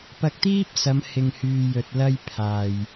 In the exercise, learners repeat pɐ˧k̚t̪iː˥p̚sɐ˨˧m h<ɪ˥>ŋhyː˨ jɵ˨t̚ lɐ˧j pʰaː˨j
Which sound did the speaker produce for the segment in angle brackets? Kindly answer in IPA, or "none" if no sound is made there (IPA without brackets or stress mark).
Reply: ɪ˨